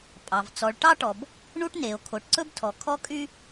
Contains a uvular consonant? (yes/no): no